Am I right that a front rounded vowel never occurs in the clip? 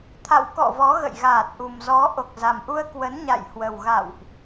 yes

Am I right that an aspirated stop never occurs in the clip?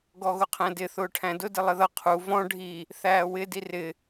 no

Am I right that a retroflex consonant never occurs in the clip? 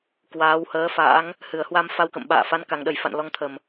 yes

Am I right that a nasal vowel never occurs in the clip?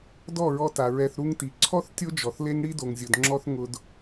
yes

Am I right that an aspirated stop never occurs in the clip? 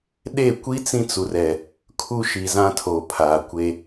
no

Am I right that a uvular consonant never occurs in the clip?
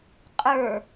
no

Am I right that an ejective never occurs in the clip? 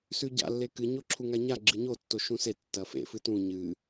yes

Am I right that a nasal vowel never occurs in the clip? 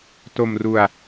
yes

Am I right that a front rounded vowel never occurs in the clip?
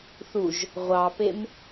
yes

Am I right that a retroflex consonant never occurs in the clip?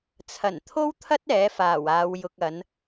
yes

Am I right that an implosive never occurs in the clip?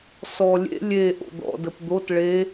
yes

